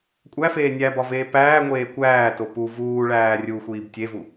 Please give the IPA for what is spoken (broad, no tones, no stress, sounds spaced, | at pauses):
kʷʼ æ f eː nʲ æ b ɒ v eː p æː ŋʷ eː kʷ æː t o p u v uː ɭ æː rʲ u xʷ iː b tʲ e v u